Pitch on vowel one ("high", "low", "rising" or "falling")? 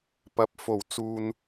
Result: rising